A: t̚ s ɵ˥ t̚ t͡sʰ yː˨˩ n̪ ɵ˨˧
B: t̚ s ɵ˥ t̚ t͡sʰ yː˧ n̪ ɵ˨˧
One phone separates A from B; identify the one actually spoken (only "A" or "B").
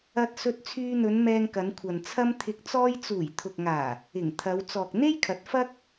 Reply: B